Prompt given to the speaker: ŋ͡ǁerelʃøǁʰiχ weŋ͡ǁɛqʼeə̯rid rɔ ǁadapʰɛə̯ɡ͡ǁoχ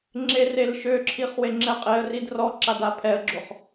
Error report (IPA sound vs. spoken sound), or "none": none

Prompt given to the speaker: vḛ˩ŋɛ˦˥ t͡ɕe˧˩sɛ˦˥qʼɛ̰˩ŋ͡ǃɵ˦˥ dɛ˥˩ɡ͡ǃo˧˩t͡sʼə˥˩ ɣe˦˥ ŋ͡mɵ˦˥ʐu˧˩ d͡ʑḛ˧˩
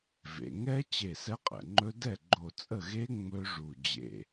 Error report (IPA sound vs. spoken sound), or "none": none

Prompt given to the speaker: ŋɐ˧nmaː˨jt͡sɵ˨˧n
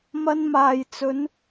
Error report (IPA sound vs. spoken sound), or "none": ŋ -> m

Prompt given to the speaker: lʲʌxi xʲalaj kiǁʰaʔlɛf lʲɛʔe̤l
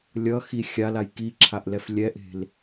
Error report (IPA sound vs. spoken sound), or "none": none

